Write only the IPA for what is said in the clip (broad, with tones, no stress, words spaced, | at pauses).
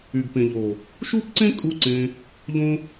y˨ɡpẽ˨ʎo˨ | ʃu˦pǀẽ˦ kʼu˦˨ǀẽ˧ | ʎõ˧